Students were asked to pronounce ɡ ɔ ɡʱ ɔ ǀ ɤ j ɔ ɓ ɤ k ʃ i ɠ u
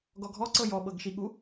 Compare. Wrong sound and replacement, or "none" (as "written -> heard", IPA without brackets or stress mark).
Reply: k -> ɡ